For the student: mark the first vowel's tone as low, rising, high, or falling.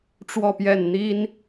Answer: falling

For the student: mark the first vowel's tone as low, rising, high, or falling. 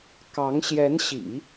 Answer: rising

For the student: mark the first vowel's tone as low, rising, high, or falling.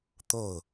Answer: falling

